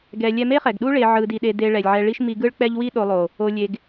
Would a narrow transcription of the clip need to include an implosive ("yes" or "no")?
yes